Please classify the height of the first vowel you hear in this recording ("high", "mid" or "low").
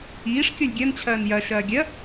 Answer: high